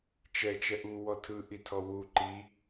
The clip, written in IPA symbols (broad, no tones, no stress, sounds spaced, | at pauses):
t͡ʃ ɛ t͡ʃ ɛ ʔ u w ɔ tʰ ɯ ʔ i tʰ ɔ w u ǃ i